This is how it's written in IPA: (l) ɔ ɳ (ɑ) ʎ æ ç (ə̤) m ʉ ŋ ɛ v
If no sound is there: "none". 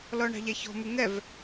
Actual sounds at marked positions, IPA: l, ɑ̤, ɔ̤

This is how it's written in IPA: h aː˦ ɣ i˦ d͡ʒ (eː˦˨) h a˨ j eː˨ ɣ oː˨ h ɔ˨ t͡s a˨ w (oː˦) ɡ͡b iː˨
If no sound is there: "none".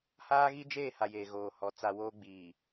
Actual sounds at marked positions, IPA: eː˦˨, oː˦

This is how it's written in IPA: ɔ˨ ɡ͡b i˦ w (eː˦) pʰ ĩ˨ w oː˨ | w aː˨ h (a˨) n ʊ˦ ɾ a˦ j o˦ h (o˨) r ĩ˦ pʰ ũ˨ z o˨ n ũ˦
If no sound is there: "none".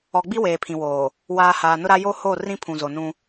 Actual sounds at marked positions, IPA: eː˨, aː˨, o˦˨

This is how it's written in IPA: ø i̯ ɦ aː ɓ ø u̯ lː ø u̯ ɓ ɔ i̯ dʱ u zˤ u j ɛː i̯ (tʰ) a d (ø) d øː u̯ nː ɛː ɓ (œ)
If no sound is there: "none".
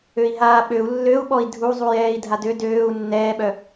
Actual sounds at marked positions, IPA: dʱ, ø, œ

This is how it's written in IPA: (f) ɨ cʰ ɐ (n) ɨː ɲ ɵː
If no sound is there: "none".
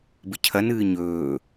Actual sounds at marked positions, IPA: b, n

